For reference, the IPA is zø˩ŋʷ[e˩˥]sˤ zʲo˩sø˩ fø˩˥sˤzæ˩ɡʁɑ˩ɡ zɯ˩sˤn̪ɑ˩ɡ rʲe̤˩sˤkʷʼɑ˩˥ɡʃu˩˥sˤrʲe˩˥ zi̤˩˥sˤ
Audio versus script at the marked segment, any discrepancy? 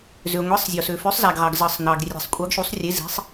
no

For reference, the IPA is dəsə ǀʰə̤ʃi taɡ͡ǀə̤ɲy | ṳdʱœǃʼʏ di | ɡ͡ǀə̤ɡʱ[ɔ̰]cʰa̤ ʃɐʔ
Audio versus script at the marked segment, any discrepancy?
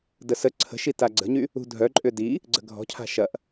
yes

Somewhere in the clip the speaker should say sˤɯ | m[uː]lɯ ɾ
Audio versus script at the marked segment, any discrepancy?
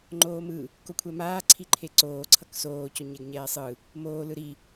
yes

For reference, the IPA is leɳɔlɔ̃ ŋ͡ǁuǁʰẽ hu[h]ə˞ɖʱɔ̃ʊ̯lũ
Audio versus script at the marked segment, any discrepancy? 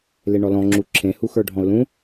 yes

